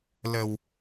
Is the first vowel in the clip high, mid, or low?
mid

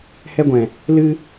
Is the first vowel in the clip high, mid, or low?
mid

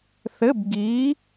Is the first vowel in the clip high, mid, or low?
mid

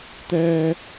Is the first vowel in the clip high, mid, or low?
mid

